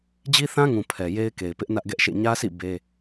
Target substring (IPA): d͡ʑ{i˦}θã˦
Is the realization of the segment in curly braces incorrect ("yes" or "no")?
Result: no